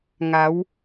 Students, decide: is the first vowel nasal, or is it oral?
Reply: oral